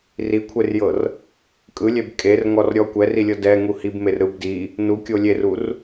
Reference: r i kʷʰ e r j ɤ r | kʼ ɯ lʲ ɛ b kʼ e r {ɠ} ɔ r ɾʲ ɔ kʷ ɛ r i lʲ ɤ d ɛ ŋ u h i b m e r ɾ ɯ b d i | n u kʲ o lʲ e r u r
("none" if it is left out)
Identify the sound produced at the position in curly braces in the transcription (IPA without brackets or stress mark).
ŋ